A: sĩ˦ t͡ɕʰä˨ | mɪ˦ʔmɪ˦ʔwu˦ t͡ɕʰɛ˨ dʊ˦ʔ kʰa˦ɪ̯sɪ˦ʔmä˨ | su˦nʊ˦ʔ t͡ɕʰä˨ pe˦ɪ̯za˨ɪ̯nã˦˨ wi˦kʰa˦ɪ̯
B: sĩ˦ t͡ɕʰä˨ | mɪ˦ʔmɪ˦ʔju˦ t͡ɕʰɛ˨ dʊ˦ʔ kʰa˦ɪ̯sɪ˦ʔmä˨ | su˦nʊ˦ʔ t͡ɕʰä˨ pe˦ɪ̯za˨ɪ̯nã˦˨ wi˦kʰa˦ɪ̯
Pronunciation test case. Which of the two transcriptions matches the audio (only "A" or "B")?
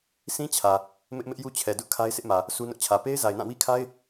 B